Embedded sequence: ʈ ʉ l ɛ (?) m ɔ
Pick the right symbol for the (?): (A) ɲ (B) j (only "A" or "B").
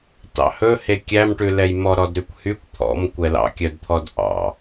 B